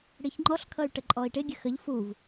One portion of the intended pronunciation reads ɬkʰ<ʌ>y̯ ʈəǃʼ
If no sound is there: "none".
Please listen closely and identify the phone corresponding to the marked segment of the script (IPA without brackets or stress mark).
ʌ